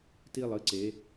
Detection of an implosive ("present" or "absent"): absent